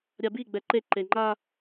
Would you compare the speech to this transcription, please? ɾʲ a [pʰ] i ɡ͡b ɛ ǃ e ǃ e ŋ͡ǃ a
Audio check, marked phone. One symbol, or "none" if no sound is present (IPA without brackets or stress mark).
b